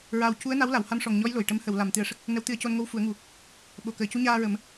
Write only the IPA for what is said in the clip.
ɹ aː˨˩ w c u˧˥ ə̯ n a˧˥ w l a˨˩˨ w h a˧ m ʂ ɔ˨˩ ŋ ɲ ɔ˧˥ j l o˨˩ j ʈ ə˧˥ m h ə˨˩˨ w l a˨˩˨ m t̪ ɨ˨˩˨ ə̯ ʂ ə˦˥ k̚ | n ə˧˥ w t̪ ɨ˧˥ ə̯ c o˧ n ŋ o˧ w f u˨˩˦ ə̯ ŋ u˨˩ | ɓ o˨˩˨ k əː˨˩ c u˧˥ ɲ aː˧ ɹ ə˨˩˦ m

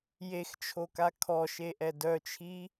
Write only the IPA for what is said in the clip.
j e x t͡ʃʰ o k a kʰ ɔ ʃ e ʔ ɛ d œ t͡ʃʰ i

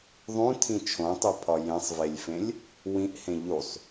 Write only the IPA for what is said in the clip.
ðˤ ũ tʰ ĩ t͡ʃʰ õ tˤ u pʰ ɒ j ẽ sˤ v e lʲ f ẽ lʲ | w ĩ ʔ h ẽ ʎ u sˤ

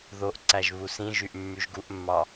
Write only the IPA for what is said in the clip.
ð o ʔ ǀ æ ʒ β u s ĩ ʒ y ʔ mː y ʒ ɡ u ʔ mː ɑ

